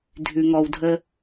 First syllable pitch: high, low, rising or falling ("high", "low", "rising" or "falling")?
low